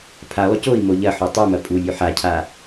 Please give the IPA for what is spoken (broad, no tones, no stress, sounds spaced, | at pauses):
pʰ a lˠ u c o i̯ m o ʎ ɐ ħ o tˤ ʉ m ɐ pʼ u lʲ ʉ ħ a cʰ a